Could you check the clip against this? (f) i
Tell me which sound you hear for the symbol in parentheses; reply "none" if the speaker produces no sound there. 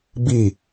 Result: b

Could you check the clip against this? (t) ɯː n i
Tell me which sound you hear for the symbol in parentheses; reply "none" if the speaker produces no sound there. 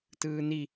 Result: t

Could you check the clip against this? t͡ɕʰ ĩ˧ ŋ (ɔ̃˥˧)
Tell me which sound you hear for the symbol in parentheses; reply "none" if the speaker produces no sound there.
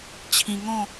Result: ɔ̃˥˧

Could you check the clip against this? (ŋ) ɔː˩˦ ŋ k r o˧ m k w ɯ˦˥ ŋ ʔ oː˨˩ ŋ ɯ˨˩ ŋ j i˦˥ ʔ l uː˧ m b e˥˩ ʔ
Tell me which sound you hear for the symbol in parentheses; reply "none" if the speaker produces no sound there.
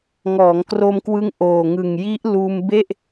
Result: ŋ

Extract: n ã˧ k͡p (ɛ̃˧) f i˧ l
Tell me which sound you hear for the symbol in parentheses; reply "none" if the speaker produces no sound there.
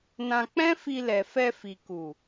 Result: ɛ̃˦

